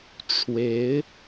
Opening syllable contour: rising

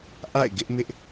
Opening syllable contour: falling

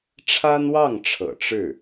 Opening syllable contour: high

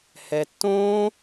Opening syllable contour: low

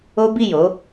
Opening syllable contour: high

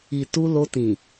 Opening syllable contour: low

